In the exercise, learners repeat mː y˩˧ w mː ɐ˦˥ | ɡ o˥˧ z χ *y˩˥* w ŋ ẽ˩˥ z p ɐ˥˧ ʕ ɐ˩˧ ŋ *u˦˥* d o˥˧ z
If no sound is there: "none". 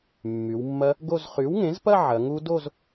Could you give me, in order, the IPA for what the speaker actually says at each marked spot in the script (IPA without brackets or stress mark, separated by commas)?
y˩˥, u˦˥